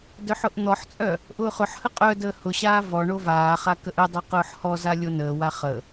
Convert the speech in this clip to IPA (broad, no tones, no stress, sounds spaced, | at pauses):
d œ ħ ʊ ʔ n̪ ɔ ħ t͡sʼ œ | ʔ ʊː χ ʊ ħ h ə qʼ œ d əː h ʊ ɕ aː v ɔ ɳ o v aː χ a k ə ʔ ə dˤ œ q ʊː ħ h ɔ z a lʲ o n əː w a χ ə